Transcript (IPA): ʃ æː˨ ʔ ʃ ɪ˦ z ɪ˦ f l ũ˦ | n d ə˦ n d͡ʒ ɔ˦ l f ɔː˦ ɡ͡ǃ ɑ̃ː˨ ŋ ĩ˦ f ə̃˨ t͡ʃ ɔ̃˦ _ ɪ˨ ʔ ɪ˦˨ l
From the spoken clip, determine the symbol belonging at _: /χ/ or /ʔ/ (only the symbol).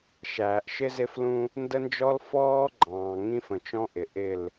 ʔ